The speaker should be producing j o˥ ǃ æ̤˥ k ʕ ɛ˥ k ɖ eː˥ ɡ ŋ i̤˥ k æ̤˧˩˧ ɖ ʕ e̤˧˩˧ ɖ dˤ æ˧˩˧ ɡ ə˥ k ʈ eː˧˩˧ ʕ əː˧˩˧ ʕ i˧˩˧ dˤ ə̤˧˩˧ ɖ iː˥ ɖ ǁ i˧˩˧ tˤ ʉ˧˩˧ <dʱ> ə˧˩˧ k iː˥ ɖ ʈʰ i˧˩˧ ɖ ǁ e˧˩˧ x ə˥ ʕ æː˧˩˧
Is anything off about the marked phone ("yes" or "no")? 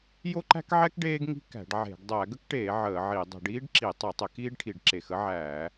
yes